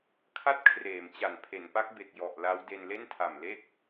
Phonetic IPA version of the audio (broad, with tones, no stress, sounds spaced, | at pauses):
kʰ a˥˩ t̚ kʰ r eː˩˦ m t͡ɕ a˨˩ n pʰ e˩˦ n p a˦˥ k̚ b e˨˩ k̚ j ɔ˨˩ ʔ l a˦˥ w d e˧ n l e˥˩ n tʰ a˨˩ m l e˥˩ k̚